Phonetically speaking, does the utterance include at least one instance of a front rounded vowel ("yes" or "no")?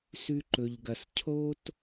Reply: no